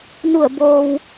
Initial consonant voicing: voiced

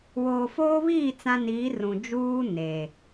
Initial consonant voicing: voiced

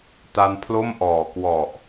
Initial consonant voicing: voiceless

